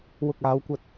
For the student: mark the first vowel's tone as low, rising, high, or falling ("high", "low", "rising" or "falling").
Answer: low